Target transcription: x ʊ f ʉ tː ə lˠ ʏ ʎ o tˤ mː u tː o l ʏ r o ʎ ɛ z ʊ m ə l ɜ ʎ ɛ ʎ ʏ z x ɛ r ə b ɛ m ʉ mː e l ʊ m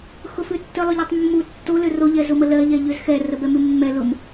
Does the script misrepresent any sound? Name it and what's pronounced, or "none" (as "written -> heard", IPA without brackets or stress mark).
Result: e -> ɛ